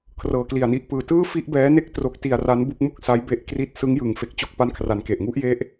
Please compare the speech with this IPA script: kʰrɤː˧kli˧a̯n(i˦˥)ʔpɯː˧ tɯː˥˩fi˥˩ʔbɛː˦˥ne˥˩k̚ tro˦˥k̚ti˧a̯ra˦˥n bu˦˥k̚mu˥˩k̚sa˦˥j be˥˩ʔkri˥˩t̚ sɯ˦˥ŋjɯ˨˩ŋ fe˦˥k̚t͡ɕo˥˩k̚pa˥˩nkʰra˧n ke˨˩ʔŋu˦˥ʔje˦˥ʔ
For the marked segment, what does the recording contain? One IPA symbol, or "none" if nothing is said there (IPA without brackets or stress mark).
i˦˥